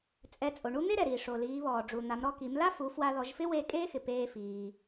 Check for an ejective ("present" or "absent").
present